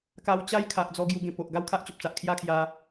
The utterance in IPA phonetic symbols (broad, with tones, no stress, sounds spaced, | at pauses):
k a˧ w t͡ɕ a˦ j kʰ a˨ ʔ d͡z ɔ˧ ɡ j u˧ ɡ ẽ˨˩ p o˨ ʔ ɡ a˥˧ w kʰ a˦ ʔ t͡ɕ o˨ p̚ t͡s a˨ ʔ kʰ j a˥˧ kʰ j a˧